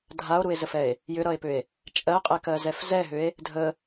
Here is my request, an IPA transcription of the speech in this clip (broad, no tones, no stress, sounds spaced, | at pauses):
dʱ a o̯ ɾ u e̯ z ə f ɛ e̯ | j ʏ ɾ ʌ e̯ p ʏ e̯ | t͡ʃʼ ɜ qʼ ɛ k ɜ z ɛ f z ɛ ɦ ʏ e̯ | dʱ ə